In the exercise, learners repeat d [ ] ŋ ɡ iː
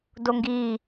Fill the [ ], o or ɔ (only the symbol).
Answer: o